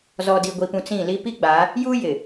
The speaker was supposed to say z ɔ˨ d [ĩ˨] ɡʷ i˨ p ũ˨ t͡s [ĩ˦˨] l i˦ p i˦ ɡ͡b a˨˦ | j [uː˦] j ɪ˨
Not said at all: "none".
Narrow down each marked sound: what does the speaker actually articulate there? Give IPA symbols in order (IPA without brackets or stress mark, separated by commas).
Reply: i˨, ĩ˦˨, uː˦